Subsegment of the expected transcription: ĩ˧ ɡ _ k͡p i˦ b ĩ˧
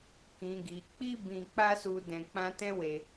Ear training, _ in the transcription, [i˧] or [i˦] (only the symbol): i˧